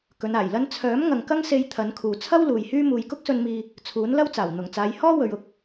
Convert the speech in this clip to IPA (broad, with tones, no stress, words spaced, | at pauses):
kɵ˨˧naː˨˩jlɐ˥n t͡sʰœː˨˥m ŋɐ˨ŋkɐ˥ŋse˧j t̪ʰɐ˨˥nkʰuː˨ t͡sʰɐ˥w luː˨jhyː˥ muː˨jkʊ˥k̚sɵ˧nmiː˧ | t͡sʰuː˨˥nlɐ˥w t͡saː˨˩w n̪ʊ˨˩ŋt͡saː˨˧j hɔː˥wɵ˨ɥ ʊ˧k̚